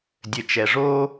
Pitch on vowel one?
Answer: low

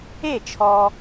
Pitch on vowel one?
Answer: falling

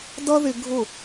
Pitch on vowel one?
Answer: high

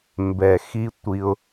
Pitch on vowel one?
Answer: low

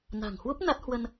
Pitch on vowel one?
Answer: low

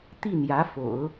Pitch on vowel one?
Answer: falling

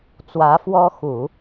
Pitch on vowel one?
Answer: rising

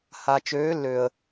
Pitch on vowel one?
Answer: low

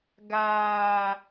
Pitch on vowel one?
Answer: high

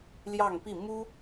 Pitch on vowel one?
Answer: falling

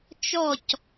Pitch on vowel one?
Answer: falling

